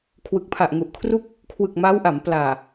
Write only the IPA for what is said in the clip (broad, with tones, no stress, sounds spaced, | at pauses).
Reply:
kʰ w ɯ˨˩ k̚ pʰ a˨˩ ʔ ŋ u˨˩ ʔ kʰ r u˥˩ k̚ | kʰ w ɯ˨˩ k̚ m aː˦˥ w ʔ a˩˦ m p l aː˨˩